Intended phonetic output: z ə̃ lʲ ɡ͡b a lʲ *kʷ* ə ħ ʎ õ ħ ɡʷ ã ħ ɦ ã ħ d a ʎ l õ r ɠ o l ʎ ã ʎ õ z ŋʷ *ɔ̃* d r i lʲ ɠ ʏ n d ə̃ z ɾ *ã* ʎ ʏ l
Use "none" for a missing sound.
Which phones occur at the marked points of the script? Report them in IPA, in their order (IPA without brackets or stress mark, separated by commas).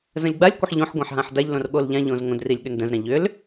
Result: kʷ, ə̃, ã